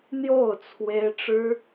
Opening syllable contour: falling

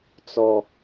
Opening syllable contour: low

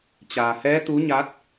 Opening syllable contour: low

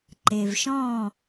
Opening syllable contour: low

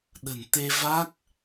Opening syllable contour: low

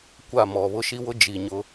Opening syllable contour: falling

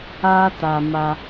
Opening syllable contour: high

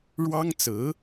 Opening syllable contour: high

